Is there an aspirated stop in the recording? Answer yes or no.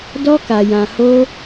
no